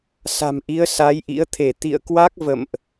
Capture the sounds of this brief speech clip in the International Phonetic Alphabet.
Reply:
s a̤˨˩ m ʔ i˨˦ ə̯ s a˨˦ j ʔ ḭ˧˥ ə̯ t̪ʰ e˧˩ t̪ ḭ˧˨ ə̯ k w a˦˥ k̚ v ə̰˧˨ m ʔ

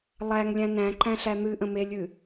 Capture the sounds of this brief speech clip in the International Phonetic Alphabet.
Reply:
lˠ æ ŋ lʲ æ̃ n æ̃ ǃ æ̃ ɬ æ n̪ ɨ ʔ ə̃ m e lʲ ɨ

